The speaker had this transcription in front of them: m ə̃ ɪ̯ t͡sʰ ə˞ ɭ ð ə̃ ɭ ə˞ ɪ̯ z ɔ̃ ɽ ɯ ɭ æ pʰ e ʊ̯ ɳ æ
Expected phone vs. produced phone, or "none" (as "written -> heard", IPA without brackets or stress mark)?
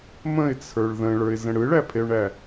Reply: ɔ̃ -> ə̃